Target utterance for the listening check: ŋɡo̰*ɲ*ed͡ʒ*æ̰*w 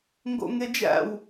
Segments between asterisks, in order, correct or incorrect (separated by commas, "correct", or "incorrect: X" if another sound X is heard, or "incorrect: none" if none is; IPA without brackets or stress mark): incorrect: ŋ, correct